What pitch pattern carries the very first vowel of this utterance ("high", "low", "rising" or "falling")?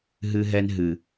high